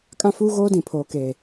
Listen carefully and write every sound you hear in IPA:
kʼ ã˦ f uː˦ ɣ oː˦ d ĩ˨ pʰ oː˨ k eː˨

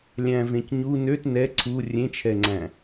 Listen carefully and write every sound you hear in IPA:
lʲ æ̃ v ẽ c ɲ u n ø t n ɛ ǀʰ u rʲ ẽ t͡ʃʰ ɛ ŋ͡ǀ æ̃

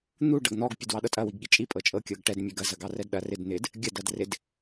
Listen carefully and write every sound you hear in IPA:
n̪ u ɖ ɐ ɡ n̪ ɔ ɡ pʲ u d w ɑ ɗ ɤ tʼ ɐ w i ɡ ɠ i t͡ʃʼ i pʼ ɤ t͡ʃʼ ɤ kʲ ɤ ɡ ʈ ɛ d mʲ ɛ ɡ ɐ z ɐ ɡ ɑ r ɛ d ɗ ɐ r ɪ d n̪ ɪ d | ɡʲ ɐ d ɐ d r ɪ d

